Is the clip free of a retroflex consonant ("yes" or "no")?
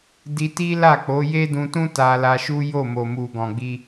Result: yes